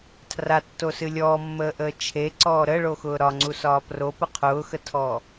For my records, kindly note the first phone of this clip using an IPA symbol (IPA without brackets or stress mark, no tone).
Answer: tʰ